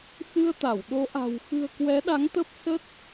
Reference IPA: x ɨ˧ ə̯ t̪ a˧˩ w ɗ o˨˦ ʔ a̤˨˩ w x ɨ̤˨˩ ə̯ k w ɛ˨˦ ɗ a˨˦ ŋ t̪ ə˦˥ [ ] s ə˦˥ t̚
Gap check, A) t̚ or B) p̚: B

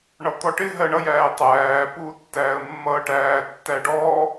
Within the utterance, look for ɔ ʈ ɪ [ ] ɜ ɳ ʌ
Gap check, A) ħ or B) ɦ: B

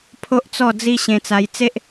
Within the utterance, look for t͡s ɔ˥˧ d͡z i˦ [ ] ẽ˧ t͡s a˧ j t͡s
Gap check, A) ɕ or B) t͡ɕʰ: A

